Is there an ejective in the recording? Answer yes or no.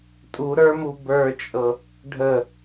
yes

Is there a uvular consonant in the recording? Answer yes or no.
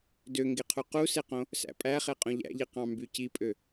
yes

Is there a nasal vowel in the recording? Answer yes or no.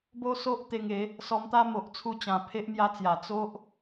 yes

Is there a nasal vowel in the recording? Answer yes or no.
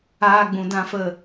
yes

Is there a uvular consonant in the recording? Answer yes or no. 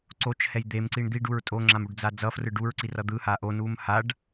no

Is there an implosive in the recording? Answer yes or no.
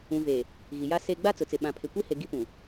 yes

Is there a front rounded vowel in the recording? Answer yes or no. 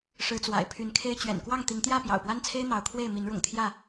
yes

